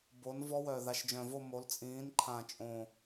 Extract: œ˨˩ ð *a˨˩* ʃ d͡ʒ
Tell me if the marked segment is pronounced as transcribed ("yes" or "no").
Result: yes